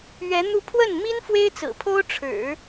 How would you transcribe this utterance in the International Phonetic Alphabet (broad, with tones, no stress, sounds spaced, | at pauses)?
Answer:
ɥ ɛ˧˥ n̪ u˥˧ pʰ w ə˥˩ n m i˥ n f w e˥ ɪ̯ t͡s ɹ̩˨˩ pʰ o˥ ʊ̯ ʈ͡ʂʰ ɻ̩˨˩˦